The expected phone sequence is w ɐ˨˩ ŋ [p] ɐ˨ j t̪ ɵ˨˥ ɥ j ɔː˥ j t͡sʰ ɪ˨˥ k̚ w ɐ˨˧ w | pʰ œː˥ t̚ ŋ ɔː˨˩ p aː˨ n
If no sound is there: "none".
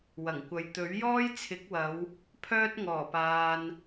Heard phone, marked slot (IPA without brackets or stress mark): kʷ